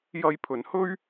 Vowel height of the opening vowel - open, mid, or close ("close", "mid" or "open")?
open